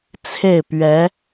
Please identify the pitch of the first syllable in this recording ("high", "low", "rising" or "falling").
falling